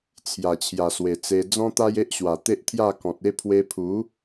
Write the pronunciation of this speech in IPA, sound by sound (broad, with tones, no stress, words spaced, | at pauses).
t͡sʰja˨˩t͡ɕʰja˨˩swe˨˩t͡se˧ d͡zɔ̃˦t̪a˦j e˦ʔɕwa˨˩t̪e˦ʔt̪ʰja˥˧ kɔ̃˨t̚ e˥˧pʰwe˧pʰu˨˦